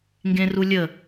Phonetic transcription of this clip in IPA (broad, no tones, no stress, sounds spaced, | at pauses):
ŋ ɡ ẽ r u lʲ ə